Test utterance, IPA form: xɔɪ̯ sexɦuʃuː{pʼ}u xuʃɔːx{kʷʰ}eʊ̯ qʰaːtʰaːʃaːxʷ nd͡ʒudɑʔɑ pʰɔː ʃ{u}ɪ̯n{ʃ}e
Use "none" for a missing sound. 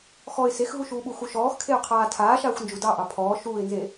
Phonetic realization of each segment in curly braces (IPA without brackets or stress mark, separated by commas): ɓ, kʰ, uː, z